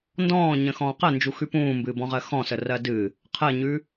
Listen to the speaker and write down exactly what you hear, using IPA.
n d ɔ̃ː ɲ ə̃ x ɔ̃ː q ɜ n d͡ʒ u x ʉ p ũː m b ɨː b ɔ̃ ʁ ɜ x ɔ̃ s ə r ɜ d ɨ | qʰ ɜ ɲ ʉ

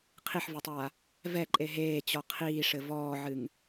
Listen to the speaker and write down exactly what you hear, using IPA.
qʰ i ħ v ɐ tˤ aː | v ɛ ǃʼ e ɦ eː t͡ɕ ɔ qʰ iː ʂ ɘ v ɔː ʕ ɨ ŋ

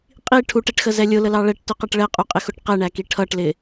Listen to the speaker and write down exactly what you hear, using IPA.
qʼ i ʈʰ u ʈ ɛ ʈ x ə z ɛ lʲ ʊ l ə l ɑ ɭ ɛ ʈ t ʊ q ɛ ʈ ɭ ɛ qʼ u qʼ ɪ x ʊ ʈ q ɛ ɳ æ k i ʈʰ ʌ ʈ l ɪ

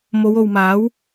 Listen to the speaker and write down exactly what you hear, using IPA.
m o˨˧ w o˨ w m aː˨˥ w

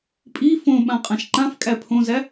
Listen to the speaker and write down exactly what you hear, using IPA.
pʼ i f õ ɓ ã qʼ ã ʃ ǃ ã f kʼ æ pʰ õ z æ

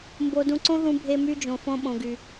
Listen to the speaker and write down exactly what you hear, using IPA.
m b o˧ d ũ˧ ǀ õ˦ ð ũ˧ bʱ e˧ m y˧ d͡ʒ õ˨ f õ˧ ɓ õ˨ ɡ y˨

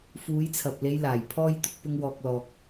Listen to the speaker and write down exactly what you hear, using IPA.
f uː˨˧ j t͡sʰ ɐ˨ p̚ l e˨˧ j l aː˨˩ j pʰ ɔː˧ j t̪ ʊ˨ k̚ p ʊ˧ ŋ w ɔː˨ k̚ l ɔː˨ k̚

